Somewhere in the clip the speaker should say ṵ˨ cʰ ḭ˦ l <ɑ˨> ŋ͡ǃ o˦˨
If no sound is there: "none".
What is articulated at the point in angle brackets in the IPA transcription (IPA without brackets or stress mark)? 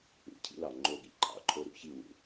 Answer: ɑ˨